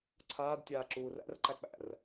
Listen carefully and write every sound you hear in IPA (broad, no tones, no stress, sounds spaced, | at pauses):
ǀʰ aː d tʲ aː ǁ uː r æ̰ r ǃ æ k͡p æ̰ r